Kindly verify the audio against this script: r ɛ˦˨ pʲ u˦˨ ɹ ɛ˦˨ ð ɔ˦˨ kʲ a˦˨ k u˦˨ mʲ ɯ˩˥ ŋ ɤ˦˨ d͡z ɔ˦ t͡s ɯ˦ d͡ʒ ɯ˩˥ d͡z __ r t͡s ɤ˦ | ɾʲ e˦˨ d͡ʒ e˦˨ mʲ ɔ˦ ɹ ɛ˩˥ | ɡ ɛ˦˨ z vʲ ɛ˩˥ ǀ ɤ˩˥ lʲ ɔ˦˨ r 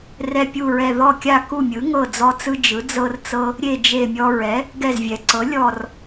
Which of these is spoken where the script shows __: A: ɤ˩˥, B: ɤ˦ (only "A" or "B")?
B